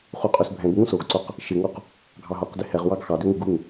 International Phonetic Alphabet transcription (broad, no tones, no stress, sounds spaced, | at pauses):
χ u qʼ ø s bʱ ɛ̃ ɡ ŋ ũ s o ɡ ǀ o q | ʃ ɪ ŋ o q | ɡʱ ɑ ɦ o q d ɪ h ɛ ʁ w ɑ ɡ x ɑ d ø ŋ ɪ ɡ u ŋ